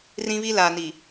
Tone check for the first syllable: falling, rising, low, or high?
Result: high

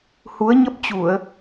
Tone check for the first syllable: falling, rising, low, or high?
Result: rising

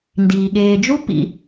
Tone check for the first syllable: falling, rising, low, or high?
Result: low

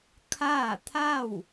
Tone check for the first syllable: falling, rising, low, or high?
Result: falling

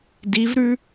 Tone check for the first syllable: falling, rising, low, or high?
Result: rising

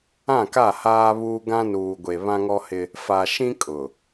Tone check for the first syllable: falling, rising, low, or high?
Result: falling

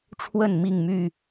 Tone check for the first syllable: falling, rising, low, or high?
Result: falling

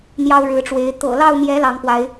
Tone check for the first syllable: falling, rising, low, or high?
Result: high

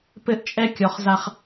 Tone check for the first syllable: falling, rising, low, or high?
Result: high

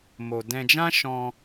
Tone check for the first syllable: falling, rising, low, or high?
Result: low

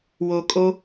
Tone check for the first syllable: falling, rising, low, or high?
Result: low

